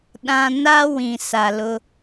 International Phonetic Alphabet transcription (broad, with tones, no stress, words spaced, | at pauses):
ɗã˦ na˦ wĩ˨sa˨lʊ˦